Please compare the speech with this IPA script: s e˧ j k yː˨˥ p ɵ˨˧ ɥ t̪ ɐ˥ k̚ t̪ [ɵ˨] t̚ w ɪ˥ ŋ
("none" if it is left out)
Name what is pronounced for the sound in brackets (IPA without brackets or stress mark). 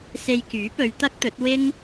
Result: ɵ˨˥